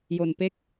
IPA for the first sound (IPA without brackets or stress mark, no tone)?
j